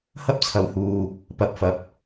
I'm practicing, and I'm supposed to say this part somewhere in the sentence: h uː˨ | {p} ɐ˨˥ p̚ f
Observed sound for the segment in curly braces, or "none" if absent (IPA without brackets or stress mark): p